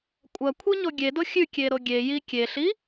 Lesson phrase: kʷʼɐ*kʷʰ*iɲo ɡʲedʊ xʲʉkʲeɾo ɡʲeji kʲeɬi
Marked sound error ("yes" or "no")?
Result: no